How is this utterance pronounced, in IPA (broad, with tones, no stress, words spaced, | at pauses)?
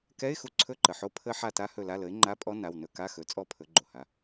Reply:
kɛ˧˥˧ɪ̯xu˦˨ǀʰɵ˧˥˧ ǃə˩ħo˦˥ pʰə˦˥ ħa˦˨ta˦˥ hɵ˦˨la˧˥˧ lə˩˥ɪ̯ŋ͡ǃa˧˥˧pʼɔ˦˥ na˩˧˩wnɵ˦˨ka˧˥˧xɵ˩˥ t͡sʼɔ˦˥pʰɵ˩˥ɡ͡ǃo˩ha˩˧˩